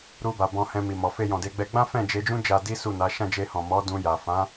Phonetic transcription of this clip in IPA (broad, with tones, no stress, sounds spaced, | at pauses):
ɾ u˧ b a˨ b ɔ̃˨ h ɛ̃˧ m i˨ m ɔ˨ f e˧ j ɔ̃˨ d e˧ ɡ͡b ɛ˧ ɡ͡b ã˦ f ɛ̃˦˨ d͡ʒ e˧ d͡ʒ ũ˦ d͡ʒ a˧ d i˦ s u˦˨ n a˨˦ ʃ ã˦˨ d͡ʒ e˧ h ɔ̃˨ m ɔ˨˦ d ũ˧ j a˨ f ã˨˦